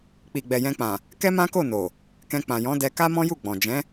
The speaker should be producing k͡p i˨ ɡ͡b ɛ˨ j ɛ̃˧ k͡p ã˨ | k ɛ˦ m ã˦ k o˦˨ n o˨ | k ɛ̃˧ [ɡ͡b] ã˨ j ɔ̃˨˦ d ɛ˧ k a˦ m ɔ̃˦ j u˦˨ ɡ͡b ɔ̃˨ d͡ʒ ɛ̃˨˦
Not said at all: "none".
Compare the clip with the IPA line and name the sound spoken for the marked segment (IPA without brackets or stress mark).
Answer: k͡p